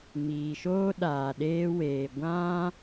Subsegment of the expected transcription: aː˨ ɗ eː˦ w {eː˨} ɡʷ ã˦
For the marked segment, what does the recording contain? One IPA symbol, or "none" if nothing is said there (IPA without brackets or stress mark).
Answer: eː˨